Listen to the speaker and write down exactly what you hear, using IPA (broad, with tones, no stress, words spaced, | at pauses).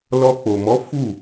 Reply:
lɔ˧k͡po˨mɔ˨˦ fu˦˨